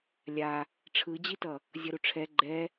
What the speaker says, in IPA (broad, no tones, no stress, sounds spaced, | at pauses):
lʲ a | ʈ͡ʂʰ ɯ d͡ʑ i t ʌ | zʲ ʌ ɾ u ʈ͡ʂʰ ɛ ɡ͡ǃ ɛ